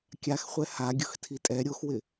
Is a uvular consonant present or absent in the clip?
present